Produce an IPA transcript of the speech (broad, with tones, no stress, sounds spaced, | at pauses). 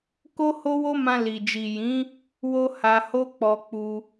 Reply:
k o˦ h o˦ w o˦ m ã˧ l i˨ d͡ʒ i˨ j ĩ˨˦ | w o˧ h a˧ h o˦ k͡p ɔ˧ k͡p u˧